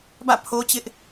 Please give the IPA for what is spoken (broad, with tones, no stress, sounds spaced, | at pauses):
b ä̰˦˨ pʰ o˦ t͡ɕ ɪ˦ ʔ